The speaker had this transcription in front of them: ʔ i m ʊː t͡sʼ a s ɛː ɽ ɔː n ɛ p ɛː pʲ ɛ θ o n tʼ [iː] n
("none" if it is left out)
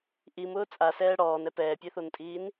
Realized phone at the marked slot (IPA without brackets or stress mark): iː